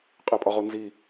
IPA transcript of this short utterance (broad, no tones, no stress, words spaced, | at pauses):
qʼepʼɒʁonzi